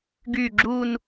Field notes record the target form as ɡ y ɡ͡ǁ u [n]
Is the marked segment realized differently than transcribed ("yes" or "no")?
no